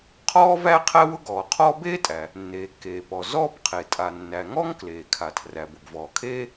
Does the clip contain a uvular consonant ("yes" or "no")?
yes